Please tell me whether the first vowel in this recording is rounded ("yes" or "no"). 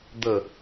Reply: no